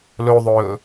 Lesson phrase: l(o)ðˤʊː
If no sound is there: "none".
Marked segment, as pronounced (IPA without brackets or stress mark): o